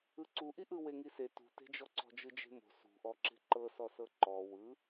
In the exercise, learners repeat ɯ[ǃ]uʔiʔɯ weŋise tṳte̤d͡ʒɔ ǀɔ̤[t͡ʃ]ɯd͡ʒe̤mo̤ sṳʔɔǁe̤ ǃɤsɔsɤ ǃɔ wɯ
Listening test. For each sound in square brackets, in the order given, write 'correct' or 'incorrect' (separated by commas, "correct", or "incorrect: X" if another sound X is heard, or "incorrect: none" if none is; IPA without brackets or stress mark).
incorrect: ǀ, incorrect: d͡ʒ